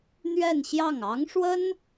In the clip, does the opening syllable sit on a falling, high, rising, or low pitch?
falling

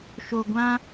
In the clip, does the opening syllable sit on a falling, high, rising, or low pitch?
low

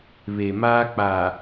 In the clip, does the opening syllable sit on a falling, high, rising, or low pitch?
low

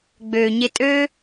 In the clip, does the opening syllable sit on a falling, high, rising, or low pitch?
low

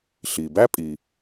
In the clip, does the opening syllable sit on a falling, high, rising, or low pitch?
low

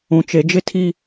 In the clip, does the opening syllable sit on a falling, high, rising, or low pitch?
low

